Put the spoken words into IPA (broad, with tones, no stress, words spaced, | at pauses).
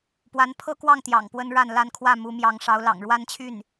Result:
pwa˧˥npʰɤ˥kwɑ˥˩ŋt̪jɑ̰˨˩ŋ pwə˥nɻa˥˩nla˥n kʰwä˥˩mu˧˥mjɑ˧˥ŋ ʂɑ˧˥ʊ̯lɑ̰˨˩ŋ ɻwa˥nt͡ɕʰy˥˩n